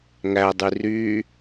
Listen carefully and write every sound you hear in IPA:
ŋ æ dˤ y r yː

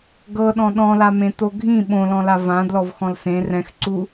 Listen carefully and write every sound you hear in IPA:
ɡ ɤ ɗ ɔ̃ ɗ ɔ̃ l a m ẽ t o ɡʱ ĩ ɓ õ l ɔ̃ l a v ã d l ɔ v x ɔ̃ l s ẽ r ɛ̃ x ǀ u

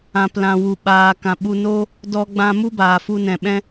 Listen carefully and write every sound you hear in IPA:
ã˨ p l ã˨ w u˨ ɓ aː˨ k ã˨ ɓ u˧ n o˦ | d ɔ˧ ɡ͡b ã˧ m u˦ b aː˨ f u˧ n ɛ̃˨ ɓ ɛ̃˦

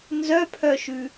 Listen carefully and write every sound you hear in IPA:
n z œ pʰ œ ʃ ʉ

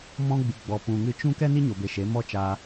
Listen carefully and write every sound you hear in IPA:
m ɔ̃˧ ɡ͡b ɨ˨ ɡ͡b ɔ˨ p ũ˨ ŋ ɨ˧ t͡ʃ ũ˦ k ɛ˦ n i˦ ɲ o˨ b e˨ ʃ e˨˦ m ɔ˦ t͡ʃ aː˧

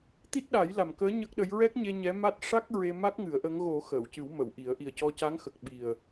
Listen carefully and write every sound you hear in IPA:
t̪ i˦˥ t̚ ɗ a˨˩˦ j l a˨˩ m k əː˧˥ ɲ ə˦˥ k̚ ɗ ə˧˥ j ɹ ɛ˦˥ k̚ ɲ e˧ ɲ ɛ˧˥ m a˦˥ t̚ ʂ a˦˥ k̚ ɹ e˧ m a˦˥ k̚ ŋ ɨ˨˩˦ ə̯ ʔ ə˧˥ ŋ ɣ o˨˩˦ x əː˨˩˨ w c ɨ˨˩˦ w m ə˨˩˨ w ʔ i˨˩˦ ə̯ ʔ i˨˩ ə̯ c ɔ˧ c a˧˥ ŋ x ə˨˩ k̚ ɓ i˨˩ ə̯

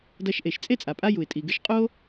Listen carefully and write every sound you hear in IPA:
d ɐ˧ ʃ ʔ e˩ ʃ t͡sʼ e˥ t͡sʼ a˩ pʼ a˥ j u˩ ɪ̯ tʼ i˩ ɡ ɨ˧ ʃ qʼ o˥

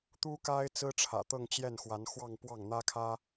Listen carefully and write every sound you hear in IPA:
t̪ u˥ k a˥ ɪ̯ t͡s ɹ̩˥ ʈ͡ʂʰ ä̰˨˩ t̪ ɤ˥˧ ŋ t͡ɕ j ɛ˥˩ n x w a˧˥ n x w ɑ˥˧ ŋ p w ɑ˥˩ ŋ n̪ ä˥ kʰ ä˥

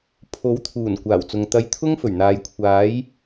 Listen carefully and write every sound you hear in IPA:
pʰ o˨˥ w t̪ʰ uː˨˩ n kʷ aː˨˩ w t͡s ʊ˨ ŋ t̪ ɐ˧ j t̪ʰ ʊ˥ ŋ f ɵ˨˩ ɥ n̪ aː˨ j kʷʰ aː˨˧ j

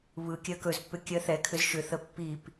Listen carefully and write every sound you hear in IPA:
β ɯ kʲ ɜ k ɵ z pː ʏ kʲ ɜ θ ɛ kʰ ʏ z ʃ ʏ θ ə pː i p

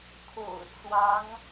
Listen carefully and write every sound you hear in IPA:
t̪ʰ o̰˨˩ ʊ̯ t͡s w ɑ˧˥ ŋ

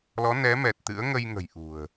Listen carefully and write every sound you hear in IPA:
l ɔ˨˦ n ɛ˨˦ m ɛ˨˩ t̚ t̪ ɨ̰˧˥ ə̯ ŋ ə˧ j ŋ ə̤˨˩ j ʔ ṳ˨˩ ə̯

